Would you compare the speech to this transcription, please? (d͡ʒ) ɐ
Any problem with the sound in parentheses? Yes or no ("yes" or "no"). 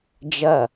no